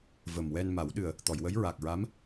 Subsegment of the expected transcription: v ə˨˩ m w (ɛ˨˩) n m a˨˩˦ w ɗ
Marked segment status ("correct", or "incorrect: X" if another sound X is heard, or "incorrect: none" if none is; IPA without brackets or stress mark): incorrect: ɛ˧